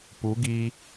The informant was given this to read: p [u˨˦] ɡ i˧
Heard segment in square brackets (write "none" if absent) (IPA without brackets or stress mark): u˨˦